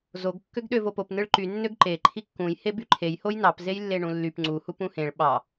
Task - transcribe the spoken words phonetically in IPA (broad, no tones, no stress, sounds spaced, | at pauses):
z o ɡ kː ø ɡ ɗ ø v o p o p n ɯ ɭ ǃ y nː ø ɡ ǃ e ǃʰ i kː ũ j h e b y ǃʰ e j h o j n ɑ p z e j lː e ɳ ũ lː y p ŋ͡ǀ u h u p ũ h ẽ ɭ ɓ ɑ